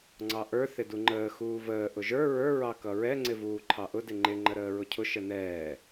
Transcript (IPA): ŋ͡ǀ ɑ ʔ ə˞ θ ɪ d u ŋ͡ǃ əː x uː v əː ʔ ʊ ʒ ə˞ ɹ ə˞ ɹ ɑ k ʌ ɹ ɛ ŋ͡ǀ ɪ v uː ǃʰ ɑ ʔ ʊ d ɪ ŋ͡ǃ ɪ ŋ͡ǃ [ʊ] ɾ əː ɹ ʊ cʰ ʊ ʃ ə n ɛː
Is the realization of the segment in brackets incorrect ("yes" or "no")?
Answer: yes